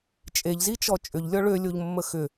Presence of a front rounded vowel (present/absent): present